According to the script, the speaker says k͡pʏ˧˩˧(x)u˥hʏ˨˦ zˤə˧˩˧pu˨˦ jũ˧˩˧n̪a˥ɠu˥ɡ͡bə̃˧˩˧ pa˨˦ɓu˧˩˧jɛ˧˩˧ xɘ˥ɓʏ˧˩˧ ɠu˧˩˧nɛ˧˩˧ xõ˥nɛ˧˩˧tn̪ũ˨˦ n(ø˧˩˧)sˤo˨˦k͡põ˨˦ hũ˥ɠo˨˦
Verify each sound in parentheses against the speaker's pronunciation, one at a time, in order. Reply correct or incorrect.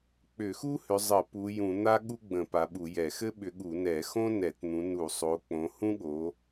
correct, incorrect

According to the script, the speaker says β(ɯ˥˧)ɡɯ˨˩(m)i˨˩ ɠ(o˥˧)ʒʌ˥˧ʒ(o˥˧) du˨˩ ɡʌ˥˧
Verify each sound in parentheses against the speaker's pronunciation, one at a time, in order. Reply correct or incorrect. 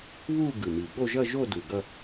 incorrect, correct, correct, correct

